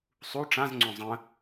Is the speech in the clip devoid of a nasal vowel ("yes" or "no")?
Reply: no